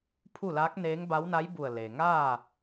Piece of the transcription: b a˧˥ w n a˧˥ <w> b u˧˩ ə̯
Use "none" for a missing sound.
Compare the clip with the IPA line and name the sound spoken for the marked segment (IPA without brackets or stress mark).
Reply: j